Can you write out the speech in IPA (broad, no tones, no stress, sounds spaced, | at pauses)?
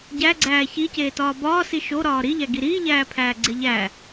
ɟ æ ɡ͡ǀ æː ç i c eː t ɒː b ɒː s i ʃ o ɾ ɒː ɾ i ʎ æ ɡ i ɾ iː ʎ æː pʰ æː ɡ͡ǀ e ʎ æ